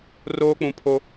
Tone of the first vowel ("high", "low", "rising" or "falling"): high